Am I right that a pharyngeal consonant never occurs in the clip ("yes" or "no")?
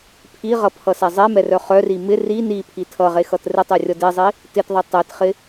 yes